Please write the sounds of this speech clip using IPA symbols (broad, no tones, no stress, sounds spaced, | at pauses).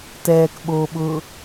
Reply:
t ɛː k ɓ oː ɓ ʊː